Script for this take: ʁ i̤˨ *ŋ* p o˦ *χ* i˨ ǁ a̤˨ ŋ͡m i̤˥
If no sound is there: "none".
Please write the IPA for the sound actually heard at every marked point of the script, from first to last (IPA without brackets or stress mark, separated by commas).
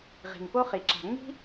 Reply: ŋ, χ